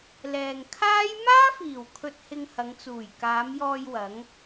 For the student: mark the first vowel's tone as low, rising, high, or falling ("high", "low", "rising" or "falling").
low